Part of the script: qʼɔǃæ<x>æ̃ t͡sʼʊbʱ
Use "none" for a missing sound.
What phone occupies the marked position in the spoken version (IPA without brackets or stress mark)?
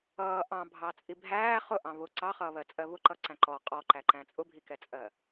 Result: ǃ